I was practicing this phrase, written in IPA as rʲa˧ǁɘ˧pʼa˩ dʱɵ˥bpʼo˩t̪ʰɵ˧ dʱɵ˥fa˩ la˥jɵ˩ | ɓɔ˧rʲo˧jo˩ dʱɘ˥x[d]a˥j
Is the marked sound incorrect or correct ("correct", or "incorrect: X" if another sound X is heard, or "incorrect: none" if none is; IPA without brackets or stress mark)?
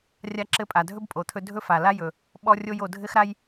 incorrect: ɾ